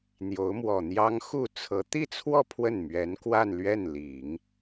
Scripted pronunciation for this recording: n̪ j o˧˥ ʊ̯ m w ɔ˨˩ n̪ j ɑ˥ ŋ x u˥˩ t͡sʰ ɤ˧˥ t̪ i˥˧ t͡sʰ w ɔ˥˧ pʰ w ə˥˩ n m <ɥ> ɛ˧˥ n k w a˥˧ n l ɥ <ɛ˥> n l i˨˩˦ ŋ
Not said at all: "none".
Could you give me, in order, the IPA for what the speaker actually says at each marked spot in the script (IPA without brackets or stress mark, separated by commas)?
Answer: ɥ, ɛ˥˩